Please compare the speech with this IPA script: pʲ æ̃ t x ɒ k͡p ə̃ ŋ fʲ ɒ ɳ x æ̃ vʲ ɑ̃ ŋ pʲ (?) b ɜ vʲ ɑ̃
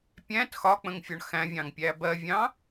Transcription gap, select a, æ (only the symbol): æ